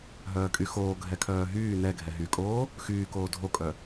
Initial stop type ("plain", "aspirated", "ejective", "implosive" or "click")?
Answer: ejective